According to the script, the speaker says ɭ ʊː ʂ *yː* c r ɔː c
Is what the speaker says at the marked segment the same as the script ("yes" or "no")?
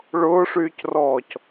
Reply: yes